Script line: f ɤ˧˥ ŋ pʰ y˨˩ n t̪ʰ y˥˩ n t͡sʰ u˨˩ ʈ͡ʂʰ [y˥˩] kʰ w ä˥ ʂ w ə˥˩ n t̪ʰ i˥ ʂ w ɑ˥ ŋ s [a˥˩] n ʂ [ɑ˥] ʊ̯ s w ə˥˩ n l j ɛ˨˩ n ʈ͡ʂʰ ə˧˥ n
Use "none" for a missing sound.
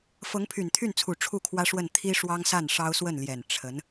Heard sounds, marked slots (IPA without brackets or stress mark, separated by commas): u˥˩, a˥˩, ɑ˥